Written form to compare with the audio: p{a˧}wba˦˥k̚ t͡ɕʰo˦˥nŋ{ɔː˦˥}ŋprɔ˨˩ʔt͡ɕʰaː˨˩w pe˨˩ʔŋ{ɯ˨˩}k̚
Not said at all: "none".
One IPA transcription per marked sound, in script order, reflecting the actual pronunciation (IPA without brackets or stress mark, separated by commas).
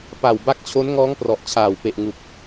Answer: a˨˩, ɔː˦˥, u˨˩